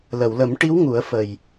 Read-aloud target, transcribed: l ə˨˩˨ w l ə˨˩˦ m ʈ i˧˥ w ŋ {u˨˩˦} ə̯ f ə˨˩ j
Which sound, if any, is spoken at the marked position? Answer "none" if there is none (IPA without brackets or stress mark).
u˨˩˦